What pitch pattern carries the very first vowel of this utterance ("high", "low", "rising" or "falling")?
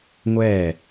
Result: falling